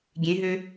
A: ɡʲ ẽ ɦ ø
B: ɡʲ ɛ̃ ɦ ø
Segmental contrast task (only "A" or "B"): A